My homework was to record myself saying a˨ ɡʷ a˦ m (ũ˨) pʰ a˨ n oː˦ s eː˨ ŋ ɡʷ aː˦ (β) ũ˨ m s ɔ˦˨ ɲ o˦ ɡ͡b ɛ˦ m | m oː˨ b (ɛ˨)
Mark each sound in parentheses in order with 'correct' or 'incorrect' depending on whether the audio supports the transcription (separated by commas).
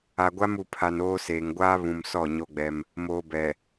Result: incorrect, correct, correct